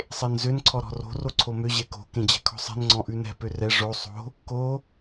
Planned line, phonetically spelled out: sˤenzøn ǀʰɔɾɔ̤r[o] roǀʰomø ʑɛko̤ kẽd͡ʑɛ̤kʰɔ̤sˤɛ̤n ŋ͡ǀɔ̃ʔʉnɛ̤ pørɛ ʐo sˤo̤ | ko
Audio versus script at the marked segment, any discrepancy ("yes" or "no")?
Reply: yes